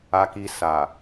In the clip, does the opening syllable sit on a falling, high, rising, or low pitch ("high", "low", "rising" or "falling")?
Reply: low